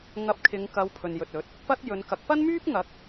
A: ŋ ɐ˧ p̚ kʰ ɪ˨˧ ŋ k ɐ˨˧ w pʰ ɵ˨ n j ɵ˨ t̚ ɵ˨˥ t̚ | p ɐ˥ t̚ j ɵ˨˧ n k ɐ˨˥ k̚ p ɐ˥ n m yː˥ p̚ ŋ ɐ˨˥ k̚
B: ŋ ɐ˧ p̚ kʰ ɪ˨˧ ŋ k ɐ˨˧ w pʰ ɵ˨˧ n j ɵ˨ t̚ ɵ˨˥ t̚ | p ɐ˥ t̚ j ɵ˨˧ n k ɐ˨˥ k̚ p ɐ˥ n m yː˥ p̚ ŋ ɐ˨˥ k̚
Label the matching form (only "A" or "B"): A